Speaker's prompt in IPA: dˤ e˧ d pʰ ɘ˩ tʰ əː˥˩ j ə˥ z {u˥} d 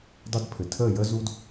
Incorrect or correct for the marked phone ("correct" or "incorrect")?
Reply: correct